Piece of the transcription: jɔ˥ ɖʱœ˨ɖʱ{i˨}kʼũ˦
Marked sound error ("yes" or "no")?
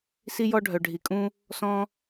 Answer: no